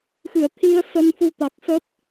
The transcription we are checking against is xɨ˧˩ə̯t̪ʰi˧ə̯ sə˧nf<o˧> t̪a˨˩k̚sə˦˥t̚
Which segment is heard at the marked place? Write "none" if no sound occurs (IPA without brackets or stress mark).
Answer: u˧